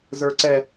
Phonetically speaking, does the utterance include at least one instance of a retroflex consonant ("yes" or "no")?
no